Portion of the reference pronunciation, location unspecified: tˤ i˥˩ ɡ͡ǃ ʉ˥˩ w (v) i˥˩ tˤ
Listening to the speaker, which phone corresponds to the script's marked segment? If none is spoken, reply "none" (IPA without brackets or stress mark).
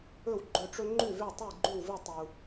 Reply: v